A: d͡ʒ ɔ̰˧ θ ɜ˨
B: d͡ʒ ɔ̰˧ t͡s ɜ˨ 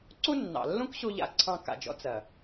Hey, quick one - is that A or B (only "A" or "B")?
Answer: B